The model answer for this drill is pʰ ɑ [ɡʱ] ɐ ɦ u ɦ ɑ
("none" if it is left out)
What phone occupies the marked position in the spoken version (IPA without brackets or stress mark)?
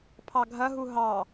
ɡʱ